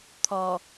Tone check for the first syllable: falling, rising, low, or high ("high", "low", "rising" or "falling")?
low